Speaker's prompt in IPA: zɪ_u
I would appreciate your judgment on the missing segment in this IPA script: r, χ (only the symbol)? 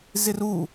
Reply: r